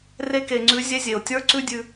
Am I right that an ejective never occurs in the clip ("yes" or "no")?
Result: yes